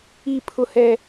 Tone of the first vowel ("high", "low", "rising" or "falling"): falling